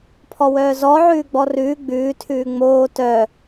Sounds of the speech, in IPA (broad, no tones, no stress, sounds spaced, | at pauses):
pʰ ɔ w œː z ɔ ʕ ʉː ɡ͡b ɔ r ʉː ɡ͡b ʉː tʰ ʉː ŋ͡m oː t œ